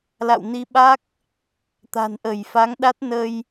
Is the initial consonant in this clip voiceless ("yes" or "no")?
no